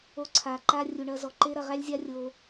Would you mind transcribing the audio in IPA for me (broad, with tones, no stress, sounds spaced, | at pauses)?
o˧ ǀʰ a˨ ǃ a˦ rʲ u˨ ɳ ɐ˧ z ɔ˨ ǃ e˦ ɾ ɐ˨ ʁ æ˦ lʲ zʲ a˦ rʲ o˧